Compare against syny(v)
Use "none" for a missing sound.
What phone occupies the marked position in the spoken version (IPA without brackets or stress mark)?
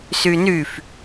f